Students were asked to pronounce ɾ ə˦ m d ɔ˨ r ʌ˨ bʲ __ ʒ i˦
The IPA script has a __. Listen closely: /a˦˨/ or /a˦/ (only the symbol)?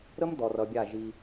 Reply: a˦˨